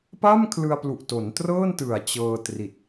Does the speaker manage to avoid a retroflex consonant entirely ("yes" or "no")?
yes